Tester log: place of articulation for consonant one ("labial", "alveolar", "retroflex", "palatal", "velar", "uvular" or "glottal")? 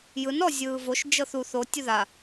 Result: palatal